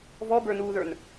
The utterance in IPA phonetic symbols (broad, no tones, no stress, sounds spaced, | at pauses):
v ɔ b ə˞ n uː ð ə˞ n